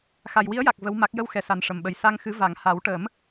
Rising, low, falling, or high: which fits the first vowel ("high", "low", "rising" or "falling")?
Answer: low